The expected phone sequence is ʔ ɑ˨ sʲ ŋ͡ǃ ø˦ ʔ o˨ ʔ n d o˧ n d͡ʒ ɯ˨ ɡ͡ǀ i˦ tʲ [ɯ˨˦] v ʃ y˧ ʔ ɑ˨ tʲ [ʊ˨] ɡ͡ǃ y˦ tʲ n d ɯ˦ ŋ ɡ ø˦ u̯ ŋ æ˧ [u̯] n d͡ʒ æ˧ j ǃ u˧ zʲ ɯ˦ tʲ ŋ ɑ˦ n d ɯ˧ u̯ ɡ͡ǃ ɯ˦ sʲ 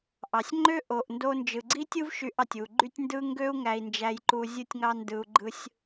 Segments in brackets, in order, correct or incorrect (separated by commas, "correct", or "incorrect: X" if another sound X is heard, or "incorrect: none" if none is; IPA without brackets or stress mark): incorrect: ɯ˦, incorrect: u˨, incorrect: i̯